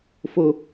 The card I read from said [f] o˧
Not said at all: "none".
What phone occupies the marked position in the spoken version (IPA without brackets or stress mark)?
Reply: f